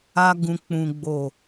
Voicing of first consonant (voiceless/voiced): voiced